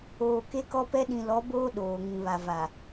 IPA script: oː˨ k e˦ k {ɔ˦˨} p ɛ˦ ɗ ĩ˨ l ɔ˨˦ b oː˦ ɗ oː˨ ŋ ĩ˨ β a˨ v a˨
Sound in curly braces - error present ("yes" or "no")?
yes